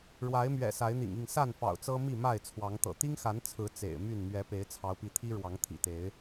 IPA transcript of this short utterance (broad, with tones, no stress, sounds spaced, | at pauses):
ɻ w a˨˦ ɪ̯ m ɥ ɛ̰˨˩ s a˨˦ ɪ̯ n̪ ḭ˨˩ ŋ i˥˨ ŋ s a˥˨ n f ɑ̰˨˩ ʊ̯ t͡s ɤ˦ m i˥˨ m a˥˨ ɪ̯ t͡sʰ w ɑ˨˦ ŋ t̪ ɤ̰˨˩ t̪ i˦ ŋ x a˨˦ n t͡sʰ ɹ̩˨˦ t͡s ḛ˨˩ ɪ̯ m y˥˨ n m ɥ ɛ˨˦ p e˨˦ ɪ̯ t͡sʰ ɑ˨˦ ʊ̯ p i˨˦ t̪ʰ i˦ ɻ w ɑ˨˦ ŋ t̪ʰ ḭ˨˩ t̪ e˨˦ ɪ̯